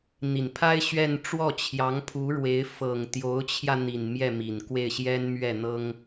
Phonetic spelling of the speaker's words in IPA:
n̪ i˨˩ n pʰ a˥ ɪ̯ ɕ ɥ ɛ˥˧ n ʈ͡ʂ w ɔ˥˩ t͡ɕʰ j ɑ˧˥ ŋ pʰ u˧˥ ɻ w e˧˥ ɪ̯ f ɤ˨˩ ŋ t̪ j o˧˥ ʊ̯ t͡ɕʰ j ä˧ n̪ i˨˩ n m j ɛ˥˩ m i˨˩ n k w e˥˩ ɪ̯ ɕ j ɛ˥ n m ɥ ɛ˥˩ n̪ ɤ˥ ŋ

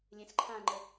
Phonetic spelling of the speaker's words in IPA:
lʲ ẽ s ǃʰ ã ŋ͡ǃ ə

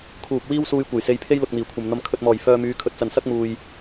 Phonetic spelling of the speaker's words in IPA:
kʰ uː˨ p̚ w iː˥ w s uː˧ j kʷ ɐ˨˩ j s e˨˧ j pʰ e˥ j l ʊ˨ k̚ n̪ iː˨˩ kʷʰ ɐ˨ m n̪ ɐ˧ m kʰ ɵ˨ t̚ m ɔː˨˩ j f œː˧ m yː˨˧ kʰ ɵ˨ t̚ t͡s ɐ˨ n s ɐ˥ k̚ m uː˨ j

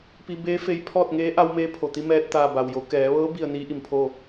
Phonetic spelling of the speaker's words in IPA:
p i˧ b eː˧˥ f e˧ j pʰ ɔː˥˨ t̚ ŋ eː˧˥ ʔ a˧ w m eː˧˥ pʰ o˩ t̪ i˧ m ɛː˧ t̚ t̪ aː˧˩ b a˩ w j o˩˧ k ɛː˩˧ ʋ ɤː˧˥ b i˥˨ ə̯ n iː˧˥ ʔ i˩ m pʰ oː˥˨

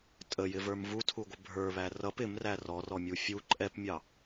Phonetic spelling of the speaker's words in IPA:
tʼ ə j ɪ v ə˞ m v u tʰ u ɡʷ ɪ bʱ ə˞ β æ r ʌ p ɪ m r æ r ɔ r ɔ mʲ u fʲ u ǃʼ ɛ p mʲ ɑ

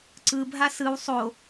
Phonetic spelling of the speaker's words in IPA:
ǀ ɯ bʱ a s ɯ w sˤ o

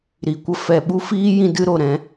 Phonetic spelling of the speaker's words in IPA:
ɾ i˨ kʷ ə˧ f ɛ˨ ɓ u˦ f iː˦ j ĩ˧ d ɨ˦ ɾ o˨ ɾ ɛ̃˨˦

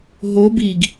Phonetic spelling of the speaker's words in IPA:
ɦ o b i ɡ

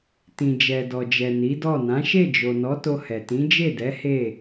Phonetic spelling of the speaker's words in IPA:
t ĩ˨ d͡ʒ ɛ˨ d ɔ˨ d͡ʒ ɛ˨ n i˨˦ d ɔ˦˨ n ã˨˦ ʃ e˦˨ d͡ʒ o˨ n ɔ˨˦ t o˧ h ɛ˨ t ĩ˨˦ d͡ʒ e˦˨ d ɛ˨˦ h e˦˨

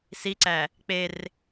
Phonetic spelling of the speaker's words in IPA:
s i ǀ æ | k͡p e r

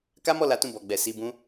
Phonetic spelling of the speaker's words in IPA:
k a˦ m ɔ˦˨ l a˨˦ t ũ˦˨ b ɔ˨ ɡ͡b ɛ˨ s i˧ b ũ˦

